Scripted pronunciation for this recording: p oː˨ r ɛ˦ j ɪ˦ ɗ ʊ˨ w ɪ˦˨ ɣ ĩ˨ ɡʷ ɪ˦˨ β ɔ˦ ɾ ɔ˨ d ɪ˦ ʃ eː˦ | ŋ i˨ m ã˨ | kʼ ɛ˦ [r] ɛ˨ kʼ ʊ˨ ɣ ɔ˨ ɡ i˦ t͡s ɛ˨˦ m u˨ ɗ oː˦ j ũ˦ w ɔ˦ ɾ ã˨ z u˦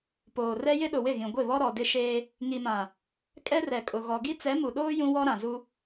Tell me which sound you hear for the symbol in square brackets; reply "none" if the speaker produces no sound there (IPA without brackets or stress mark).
r